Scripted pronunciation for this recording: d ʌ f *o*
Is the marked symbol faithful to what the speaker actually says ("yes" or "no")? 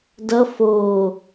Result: yes